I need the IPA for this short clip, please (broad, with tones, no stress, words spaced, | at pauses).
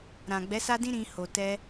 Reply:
ɾã˨ɡ͡bɛ˨˦ sa˦dĩ˦ ɾĩ˧ ho˨tɛ˧